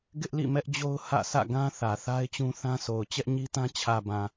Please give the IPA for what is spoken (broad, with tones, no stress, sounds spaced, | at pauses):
ɡ ɪ˦ ʔ l ḭ˦˨ m ɛ˦ ʔ d͡ʑ o˦ ʊ̯ h ä̰˦˨ s ä̰˦˨ ɡ ã˦ θ ä˨ θ a˦ ɪ̯ t͡ɕ ũ˦ θ ã˦ s o˨ ʊ̯ t͡ɕ ɛ˦ ʔ ɲ i˦ t ã˦ t͡ɕʰ ä˨ b ã˨